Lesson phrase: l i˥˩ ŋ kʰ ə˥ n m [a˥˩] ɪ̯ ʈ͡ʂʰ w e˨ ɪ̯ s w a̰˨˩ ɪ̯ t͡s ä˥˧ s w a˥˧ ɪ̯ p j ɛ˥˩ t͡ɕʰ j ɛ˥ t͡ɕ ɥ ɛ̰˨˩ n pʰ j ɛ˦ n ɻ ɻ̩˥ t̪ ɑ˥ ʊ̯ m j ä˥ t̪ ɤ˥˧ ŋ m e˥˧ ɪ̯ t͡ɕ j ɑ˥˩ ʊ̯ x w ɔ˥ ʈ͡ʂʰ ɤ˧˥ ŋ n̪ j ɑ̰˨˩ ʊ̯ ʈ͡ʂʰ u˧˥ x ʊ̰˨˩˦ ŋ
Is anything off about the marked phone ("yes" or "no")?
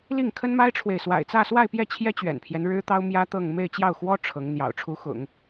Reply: yes